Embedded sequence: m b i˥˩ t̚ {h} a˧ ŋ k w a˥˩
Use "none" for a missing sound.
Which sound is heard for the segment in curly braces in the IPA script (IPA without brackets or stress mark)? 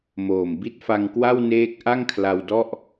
f